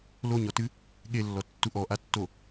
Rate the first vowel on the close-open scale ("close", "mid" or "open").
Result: mid